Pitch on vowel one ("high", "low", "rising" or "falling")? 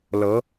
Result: rising